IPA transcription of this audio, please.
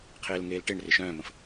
qʰ eː l ŋ eː l ʈ e ɳ r ɪ ʃ œ̃ː m ə̃ f

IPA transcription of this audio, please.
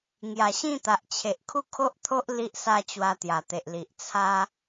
ŋ j a˨˩ ɕ ĩ˥˧ t̪ a˨ ʔ t͡ɕʰ e˨ ʔ kʰ u˥˧ kʰ o˦ ʔ t̪ʰ o˦ ʔ l i˦ ʔ s a˥˧ t͡ɕ w a˧ t̪ j a˨˩ t̪ e˨ ʔ l i˨ ʔ t͡sʰ a˦

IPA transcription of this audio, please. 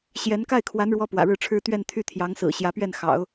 ɕ j ɛ˧˥ n k a˥˩ ɪ̯ kʰ w a˧˥ n ɻ w ɔ˧˥ p w ä̰˨˩ ɻ ɻ̩˥˩ ʈ͡ʂʰ ɻ̩˥ t̪ ɥ ɛ˥˧ n t̪ʰ y˥˩ t̪ʰ j ɑ˧˥ ŋ s ɹ̩˨˩ ɕ j ä˧˥ p ɥ ɛ˥˩ n x ɑ̰˨˩˦ ʊ̯

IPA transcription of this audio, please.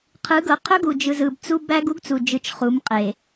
qʰ ɯ˨˦ ɡ ɤ˨ qʰ ɵ˦ ɡ u˨ d͡ʒ ɯ˨ z ɯ˨ b t͡s u˦ b æ˦ ɡ u˦ ɡ t͡s u˨ d͡ʒ ɯ˨ t͡ʃ χ u˨˦ m qʼ e˨

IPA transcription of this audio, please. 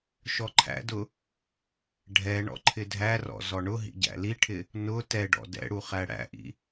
ʃ ɔ ǃʰ æ̰ d ʊ | ɖʱ ɛ ɳ ɔ̰ ǃʰ ɪ dʱ æ r ɔ̰ z ɔ ɳ ʊ ɦ ḭ ɟ æ̰ l i ʈʰ ɪ | n ʊ t ɛ ɖ ɔ̰ d ɛ̰ ɽ u χ æ ɽ æ̰ ʔ ḭ

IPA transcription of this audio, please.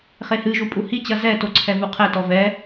χ e h ɨ ʒ u pʼ u h i t͡ɕ ɐ z ɛ t o ǀʰ ɛ v u qʰ ɛ t ɔ v ɛ

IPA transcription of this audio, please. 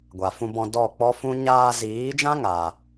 ɡʷ a˨ f ũ˧ b ɔ̃˧ d ɔ˦˨ k͡p ɔ˦ f ũ˦ ɲ aː˧ z iː˨˦ d͡ʒ ã˦ ŋ a˧

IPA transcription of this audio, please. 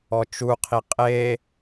ɔ t͡ʃ u qʰ i qʼ e

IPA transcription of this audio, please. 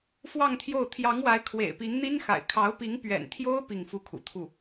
f w ɑ˥˧ ŋ t̪ʰ j o˥˩ ʊ̯ t̪ʰ j ɑ˧˥ ŋ w a˧˥ ɪ̯ kʰ w ḛ˨˩ ɪ̯ p i˧˥ ŋ n̪ i˥ n x a̰˨˩ ɪ̯ kʰ ɑ˧˥ ʊ̯ p i˧˥ ŋ p ɥ ɛ̰˨˩ n t̪ʰ j o˥ ʊ̯ p i˥˧ ŋ f u˥˩ kʰ ṵ˨˩ t̪ʰ u˥˩

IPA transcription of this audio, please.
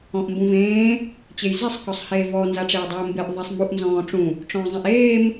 ɔ̃ ʔ m b ũ v ẽː | t͡ɕ e j z ɛ sˤ k ɔ sˤ h eː v ɔ n z a ʈ͡ʂ eː dˤ eː m b e ʔ ðˤ ɛ sˤ m u ʔ n z ɔ̃ː ʈ͡ʂ ũ | ʈ͡ʂ ɔ̃ː zˤ ɛ̃ ʔ eː m

